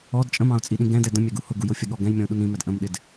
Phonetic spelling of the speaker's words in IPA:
ɔ d t͡ʃʼ ə̃ m ɑ̃ ʊ̯ t͡sʼ i ɗ ĩ ɡ ɛ̃ d ɛ d ə̃ mʲ æ ɡ u h ʊ ɡ u j ʊ fʲ ə ɠ ɔ ɡ ɛ̃ j mʲ ɔ̃ ʊ̯ ɗ u n ĩ m æ d ʔ ə̃ m ɗ ɪ d

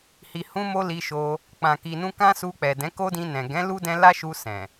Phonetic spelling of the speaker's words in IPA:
h i˨ h ũ˧ m o˧ l i˧ ʃ o˧ | k͡p ã˨ k i˨ n ũ˧ k ã˦ s u˧ k͡p ɛ˨ d ɛ̃˨˦ k o˦ d ĩ˧ n ɛ̃˨ ɡ ɛ̃˨˦ l u˦ d ɛ̃˧ l a˦ ʃ u˧ s ɛ̃˨

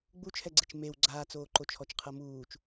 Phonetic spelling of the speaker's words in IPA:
ɡ͡b u t͡ʃʰ ɛ ɡ͡ǀ e t͡ʃ m e w ɡ͡ǀ aː t͡s oː ǃ o t͡ʃʰ ɔ t͡ʃ qʰ ɤ m uː t͡ʃ

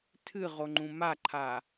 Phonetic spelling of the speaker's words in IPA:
tʰ ɨ ʁ o ŋ͡ǃ ũ m a ǃʰ a

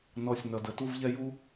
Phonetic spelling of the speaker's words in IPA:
n ɔ˨˦ sʲ n ʌ˨ d ə˨ t u˦ v ʎ ɛ˦ j u˦

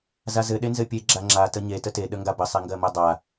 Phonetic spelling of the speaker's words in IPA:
z a z ɘ ɗ e n z ɘ pʲ e ɡ͡ǁ a ŋ͡ǁ a t ə ɲ e t ə t e ɗ ə ŋ ɡ a b ə sˤ e ŋ ɡ ɜ m ɜ dˤ a

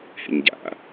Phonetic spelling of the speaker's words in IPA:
h ḛ ɲ ɟ a̰

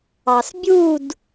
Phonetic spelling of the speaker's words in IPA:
ɑ s bʲ u d

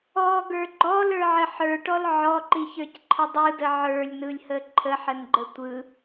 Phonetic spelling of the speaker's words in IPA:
ɔ ɡ ə˞ ɡ͡ǃ ɔ l ə˞ ʕ ə ħ ə˞ ʈ ɔ l ʕ ɔ ǃ i ç ə˞ c ǃʰ ə dˤ ɯ d ə ʕ ə˞ lʲ n ɯ lʲ h ə ǃʰ ə ħ ə n ɡ͡ǃ ə tʷ ɯ

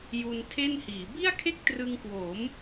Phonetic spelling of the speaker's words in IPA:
j u˧ n tʰ e˥˩ n h iː˩˦ b i˥˩ a̯ kʰ e˥˩ k̚ t r ɯ˧ ŋ k w o˩˦ m

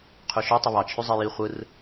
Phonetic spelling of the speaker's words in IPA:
qʰ y ʃ o tˤ o β ɑ t͡ʃʰ y zˤ e j i χʷ ɯ r

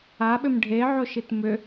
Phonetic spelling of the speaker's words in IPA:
a ɓ ʏ m ɖʱ e ʕ o ʃ i t m ʏ

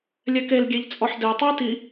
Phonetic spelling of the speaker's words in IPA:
lʲ ɛ k e l ɡʲ e ʎ t͡sʼ ɔ ħ d e tˤ ɨ i̯ t i

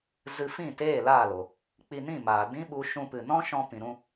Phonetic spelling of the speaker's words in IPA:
z ɨ˧ f ĩ˦˨ t eː˦˨ l aː˦˨ l o˨ | k͡p i˧ n ĩ˦˨ m aː˨ d ĩ˦ ɓ u˧ ʃ ũ˧ p ɨ˨ n ɔ̃˦ ʃ ɔ̃˧ p ĩ˨ ɾ ũ˧

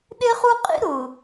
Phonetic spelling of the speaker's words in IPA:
ɗ e˦ χ u˦ qʼ ḭ˦ ɾ ʊ˨

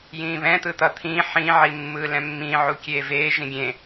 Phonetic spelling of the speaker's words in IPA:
j ĩː β ɛ̃ t̪ ɯ t̪ ʌ t̪ʰ ĩː ħ ĩ ʕ i mː ɯː l ɛ̃ mː ĩː ʕ u kʲ eː v eː ʒ ĩ ɡʲ ẽ

